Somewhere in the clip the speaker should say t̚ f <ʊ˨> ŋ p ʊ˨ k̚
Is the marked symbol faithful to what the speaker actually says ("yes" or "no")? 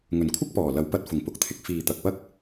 no